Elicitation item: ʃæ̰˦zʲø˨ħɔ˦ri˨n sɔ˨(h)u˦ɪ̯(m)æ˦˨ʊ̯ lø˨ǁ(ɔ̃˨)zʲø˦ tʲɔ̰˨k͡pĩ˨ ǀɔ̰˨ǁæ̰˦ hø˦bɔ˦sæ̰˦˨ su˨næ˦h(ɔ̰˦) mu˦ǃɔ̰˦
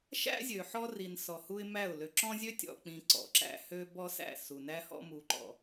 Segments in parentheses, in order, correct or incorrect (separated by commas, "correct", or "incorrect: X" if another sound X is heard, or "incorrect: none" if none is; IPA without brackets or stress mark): correct, correct, incorrect: ɔ̃˦, correct